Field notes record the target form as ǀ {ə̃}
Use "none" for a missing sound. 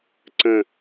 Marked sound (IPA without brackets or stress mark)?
ə̃